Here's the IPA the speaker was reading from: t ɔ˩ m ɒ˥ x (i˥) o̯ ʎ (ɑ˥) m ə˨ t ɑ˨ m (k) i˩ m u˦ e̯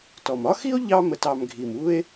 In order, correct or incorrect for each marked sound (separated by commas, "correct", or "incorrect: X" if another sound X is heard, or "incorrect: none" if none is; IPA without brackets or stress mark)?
correct, incorrect: ɑ˦, incorrect: ɡʱ